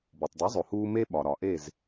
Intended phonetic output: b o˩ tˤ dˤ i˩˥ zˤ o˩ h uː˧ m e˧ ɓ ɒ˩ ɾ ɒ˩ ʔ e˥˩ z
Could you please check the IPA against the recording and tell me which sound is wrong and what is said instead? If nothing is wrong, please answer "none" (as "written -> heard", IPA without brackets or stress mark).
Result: none